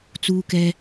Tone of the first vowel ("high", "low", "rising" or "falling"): high